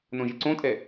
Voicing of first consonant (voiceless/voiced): voiced